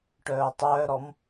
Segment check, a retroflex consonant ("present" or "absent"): present